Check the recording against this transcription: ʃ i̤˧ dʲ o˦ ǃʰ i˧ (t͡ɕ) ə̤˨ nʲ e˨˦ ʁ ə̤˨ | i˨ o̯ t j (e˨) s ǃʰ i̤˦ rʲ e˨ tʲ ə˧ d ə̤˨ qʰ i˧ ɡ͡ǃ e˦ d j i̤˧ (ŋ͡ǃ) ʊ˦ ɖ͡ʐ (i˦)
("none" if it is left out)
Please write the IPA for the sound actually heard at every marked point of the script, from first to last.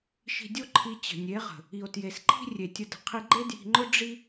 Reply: t͡ɕ, e˨, ŋ͡ǃ, i˦

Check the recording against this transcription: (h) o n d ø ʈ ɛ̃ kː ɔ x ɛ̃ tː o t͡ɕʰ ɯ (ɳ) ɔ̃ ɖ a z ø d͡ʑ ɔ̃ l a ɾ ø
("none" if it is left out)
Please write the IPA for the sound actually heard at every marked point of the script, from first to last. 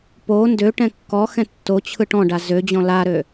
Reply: p, ʈ

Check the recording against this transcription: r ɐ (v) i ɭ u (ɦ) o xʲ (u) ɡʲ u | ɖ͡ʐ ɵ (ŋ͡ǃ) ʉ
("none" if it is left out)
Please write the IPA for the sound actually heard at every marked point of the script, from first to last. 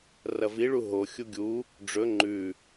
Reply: v, ɦ, u, ŋ͡ǃ

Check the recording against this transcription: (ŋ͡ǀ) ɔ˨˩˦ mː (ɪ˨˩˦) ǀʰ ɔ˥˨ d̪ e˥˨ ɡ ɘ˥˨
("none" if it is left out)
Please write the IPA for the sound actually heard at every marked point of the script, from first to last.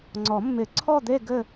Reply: ŋ͡ǀ, ɪ˨˩˦

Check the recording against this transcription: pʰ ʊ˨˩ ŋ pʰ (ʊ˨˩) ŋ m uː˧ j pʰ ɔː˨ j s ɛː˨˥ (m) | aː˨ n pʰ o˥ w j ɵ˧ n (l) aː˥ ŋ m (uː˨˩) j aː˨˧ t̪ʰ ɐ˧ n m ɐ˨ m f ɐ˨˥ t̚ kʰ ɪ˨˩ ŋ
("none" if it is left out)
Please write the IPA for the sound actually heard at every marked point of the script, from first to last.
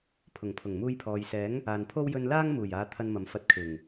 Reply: ʊ˨˩, ŋ, l, uː˨˩

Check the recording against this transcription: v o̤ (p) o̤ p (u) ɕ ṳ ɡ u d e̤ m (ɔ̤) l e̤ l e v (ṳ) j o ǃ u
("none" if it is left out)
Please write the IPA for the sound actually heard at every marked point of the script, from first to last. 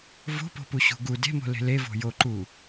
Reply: p, u, o̤, o̤

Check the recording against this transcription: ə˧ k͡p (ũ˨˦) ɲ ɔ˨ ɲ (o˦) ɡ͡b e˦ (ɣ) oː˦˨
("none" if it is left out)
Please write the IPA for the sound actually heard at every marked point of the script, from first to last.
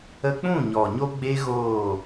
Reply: ũ˦˨, o˦, ɣ

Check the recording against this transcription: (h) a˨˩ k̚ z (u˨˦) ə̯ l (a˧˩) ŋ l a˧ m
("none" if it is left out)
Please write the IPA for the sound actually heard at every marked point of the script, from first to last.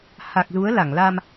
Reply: h, u˨˦, a˧˩

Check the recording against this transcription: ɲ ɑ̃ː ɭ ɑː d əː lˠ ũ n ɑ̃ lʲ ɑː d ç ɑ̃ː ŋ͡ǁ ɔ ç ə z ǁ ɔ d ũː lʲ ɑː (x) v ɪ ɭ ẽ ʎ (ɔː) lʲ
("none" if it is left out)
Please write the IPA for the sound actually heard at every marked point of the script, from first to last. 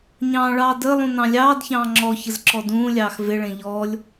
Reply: x, ɔː

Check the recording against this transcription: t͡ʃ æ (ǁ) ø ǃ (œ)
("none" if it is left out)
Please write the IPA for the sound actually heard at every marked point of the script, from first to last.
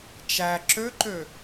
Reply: ǁ, ø

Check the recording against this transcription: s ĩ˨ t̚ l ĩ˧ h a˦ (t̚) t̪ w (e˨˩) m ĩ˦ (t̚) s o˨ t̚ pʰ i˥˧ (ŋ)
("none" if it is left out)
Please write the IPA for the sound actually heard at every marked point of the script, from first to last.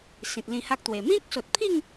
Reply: k̚, e˨˩, k̚, ŋ

